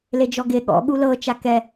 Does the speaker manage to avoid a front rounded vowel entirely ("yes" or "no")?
yes